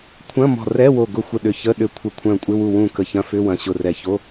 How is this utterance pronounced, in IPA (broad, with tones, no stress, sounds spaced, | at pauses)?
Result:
kʷʰ ɐ̃˧˥˧ m ɔ̤˧˩ r ɛ˧˥˧ w o˧˩ ɡ ʊ˧˩ xʷ ə˧˩ ɗ ʏ˧˩ ç ə˧˥˧ ɗ ʏ˧˩ kʷʰ ə˧˩ kʷʰ œ̃˧˩ kʷʼ ɪ˧˥˧ w u˧˩ w ũ˧˩ k ə˧˩ ç ɐ̃˧˥˧ f ʏ˧˥˧ w ɐ̃˧˩ ɕ ʊ˧˩ r ɛ˧˩ ç o˧˥˧